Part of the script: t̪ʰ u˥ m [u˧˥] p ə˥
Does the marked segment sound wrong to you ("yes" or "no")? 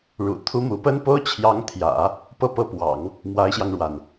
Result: no